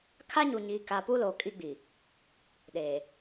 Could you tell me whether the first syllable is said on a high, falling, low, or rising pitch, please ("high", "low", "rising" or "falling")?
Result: high